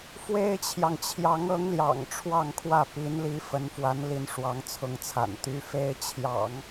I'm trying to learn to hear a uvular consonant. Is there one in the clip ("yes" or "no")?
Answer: no